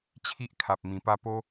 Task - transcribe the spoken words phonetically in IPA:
t͡ɕʰ i˦ ʔ kʰ a˨ p̚ m ĩ˨˩ p a˥˧ p o˦

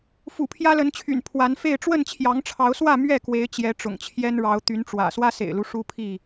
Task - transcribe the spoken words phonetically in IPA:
f ṵ˨˩ pʰ j ä˦ l ə˨˦ n t͡ɕʰ y̰˨˩ n pʰ w a˨˦ n f e˥˨ ɪ̯ ʈ͡ʂ w ə˥˨ n t͡ɕʰ j ɑ˨˦ ŋ ʈ͡ʂʰ ɑ˨˦ ʊ̯ s w ä˥˨ m ɥ ɛ˥˨ k w e˨˦ ɪ̯ t͡ɕ j ɛ˨˦ ʈ͡ʂ ʊ̰˨˩ ŋ t͡ɕʰ j ɛ˦ n ɻ ɑ˨˦ ʊ̯ t̪ y˨˦ n ʈ͡ʂ w ä̰˨˩ s w ä˦ s ḛ˨˩ ɪ̯ l u˦ ʂ u˦ pʰ i˥˨

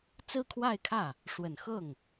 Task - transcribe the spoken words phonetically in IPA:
t͡s ɹ̩˥ kʰ w a˥˧ ɪ̯ kʰ ä˥˩ | ʂ w ə˨˩ n x ɤ˥˩ ŋ

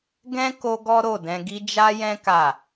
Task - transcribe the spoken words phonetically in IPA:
ɡ ɛ̃˦ k o˦ ɡ ɔ˦ ɾ o˦˨ d ɛ̃˧ ɡ i˦ d͡ʒ a˦ j ɛ̃˦ k a˦˨

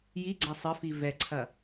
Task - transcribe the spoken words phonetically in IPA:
j i ɡ͡ǀ a sˤ ɘ f i v ɛ ǀʰ ɐ

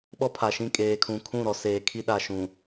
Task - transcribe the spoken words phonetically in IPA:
ɓ ɔ˦ pʰ a˨ ʃ ĩ˦˨ kʼ eː˨ kʰ ũ˨ kʰ ũ˦˨ ɾ ɔ˨ s eː˨ kʰ i˦ ɗ a˨ ʃ ũ˨

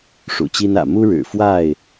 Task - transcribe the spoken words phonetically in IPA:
ʂ ṵ˨˩ t͡ɕ i˦ n ä̰˨˩ m u˦ ɻ ɻ̩˨˩ f w a˥˨ ɪ̯

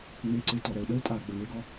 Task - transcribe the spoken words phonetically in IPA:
ŋ͡m e˨ ǀ e˨ t ɔ˨ ɾ ɛ˨ ʊ̯ ɗ ə˦ ɪ̯ tʼ a˨ ɡ͡b ə˨ ŋ e˦ ɡ ɔ˦

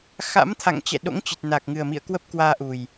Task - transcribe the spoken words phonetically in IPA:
x a̰˧˥ m t̪ʰ a̰˧˨ ŋ t͡ɕ ɛ̰˧˨ ɗ o̰˧˥ ŋ t͡ɕ ɨ˨˩ t̚ n a˨˩ k̚ ŋ ɨ˨˩ ə̯ m ḭ˧˨ ə̯ k w ə˦˥ p̚ k w aː˧ ʔ u˨˩ j

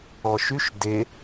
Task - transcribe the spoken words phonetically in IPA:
ɔ ʃ y ʃ d e

